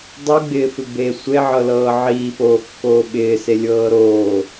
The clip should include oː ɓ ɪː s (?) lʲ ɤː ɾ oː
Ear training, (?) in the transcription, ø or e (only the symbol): e